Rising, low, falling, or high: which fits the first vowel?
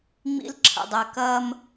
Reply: high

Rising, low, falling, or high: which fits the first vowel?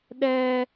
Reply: high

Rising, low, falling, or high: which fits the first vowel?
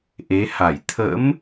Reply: rising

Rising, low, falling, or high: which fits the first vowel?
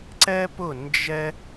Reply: high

